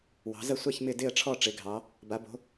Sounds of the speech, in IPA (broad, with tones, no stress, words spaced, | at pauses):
wɑ̤˩˧zɐ˦˨sʷa˦˨ç mɪ˦˨ dɪ˦˨ə̯ʈ͡ʂʰɔ˦˨ ʈ͡ʂɪ˩˧ɡʱɑ˩˧ | ba˩˧bo̤˩˧